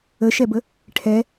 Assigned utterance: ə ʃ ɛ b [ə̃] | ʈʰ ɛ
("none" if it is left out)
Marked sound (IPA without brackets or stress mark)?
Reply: ə